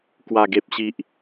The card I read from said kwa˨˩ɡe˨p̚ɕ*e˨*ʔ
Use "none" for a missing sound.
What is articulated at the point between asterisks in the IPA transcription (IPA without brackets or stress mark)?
i˨